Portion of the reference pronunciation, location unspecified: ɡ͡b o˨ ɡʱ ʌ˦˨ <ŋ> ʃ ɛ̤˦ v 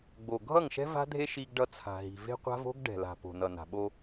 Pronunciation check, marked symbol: correct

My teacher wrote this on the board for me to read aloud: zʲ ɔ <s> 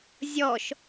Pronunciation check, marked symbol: incorrect: ʃ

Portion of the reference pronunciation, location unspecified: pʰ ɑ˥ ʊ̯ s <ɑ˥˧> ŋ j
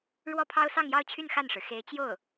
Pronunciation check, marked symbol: correct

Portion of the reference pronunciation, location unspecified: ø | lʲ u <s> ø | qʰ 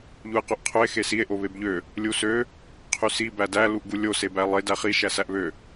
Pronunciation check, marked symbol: correct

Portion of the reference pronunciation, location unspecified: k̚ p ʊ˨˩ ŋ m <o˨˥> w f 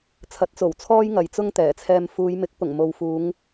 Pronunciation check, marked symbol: incorrect: o˨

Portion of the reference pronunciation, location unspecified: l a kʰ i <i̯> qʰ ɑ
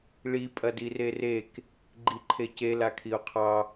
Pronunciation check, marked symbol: incorrect: u̯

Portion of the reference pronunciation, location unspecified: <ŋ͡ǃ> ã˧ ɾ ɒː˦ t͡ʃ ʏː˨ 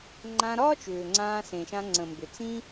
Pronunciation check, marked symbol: correct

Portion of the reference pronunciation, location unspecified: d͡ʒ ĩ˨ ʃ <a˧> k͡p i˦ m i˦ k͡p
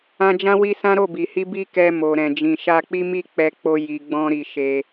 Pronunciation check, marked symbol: correct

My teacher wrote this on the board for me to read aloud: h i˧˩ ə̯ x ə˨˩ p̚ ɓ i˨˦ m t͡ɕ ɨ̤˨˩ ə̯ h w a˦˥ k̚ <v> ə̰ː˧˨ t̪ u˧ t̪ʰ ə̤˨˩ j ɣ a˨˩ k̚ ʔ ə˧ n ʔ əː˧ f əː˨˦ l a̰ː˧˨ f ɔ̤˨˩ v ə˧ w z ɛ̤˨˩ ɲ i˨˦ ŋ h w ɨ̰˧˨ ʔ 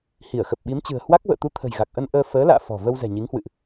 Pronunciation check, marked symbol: correct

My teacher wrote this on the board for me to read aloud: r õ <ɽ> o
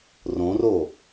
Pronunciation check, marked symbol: incorrect: r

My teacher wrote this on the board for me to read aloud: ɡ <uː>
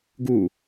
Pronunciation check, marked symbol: correct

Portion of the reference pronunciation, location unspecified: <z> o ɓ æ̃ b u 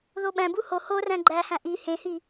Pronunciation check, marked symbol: incorrect: ð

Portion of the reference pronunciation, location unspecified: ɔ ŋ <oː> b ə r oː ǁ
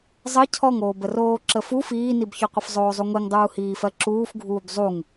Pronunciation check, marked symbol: correct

